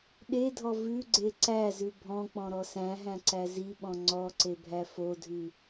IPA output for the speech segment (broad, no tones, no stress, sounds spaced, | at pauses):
ɗ e dʱ ɔ v ʉ ɡ͡ǀ e ǀ æ z ʉ bʱ ɔ̃ k͡p ɔ̃ ɾ ɔ s æ̃ ɦ æ̃ ǀ æ z i ɓ ɔ̃ ŋ͡ǀ ɔ ǀ e bʱ æ f o dʱ ʉ